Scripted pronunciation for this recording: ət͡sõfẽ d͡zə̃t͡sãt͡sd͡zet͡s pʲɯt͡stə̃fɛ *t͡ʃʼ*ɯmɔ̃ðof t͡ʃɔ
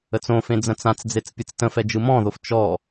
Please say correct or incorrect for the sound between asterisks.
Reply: incorrect